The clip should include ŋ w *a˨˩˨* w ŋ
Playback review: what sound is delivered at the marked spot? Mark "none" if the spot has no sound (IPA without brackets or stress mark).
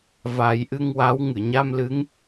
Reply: a˧˥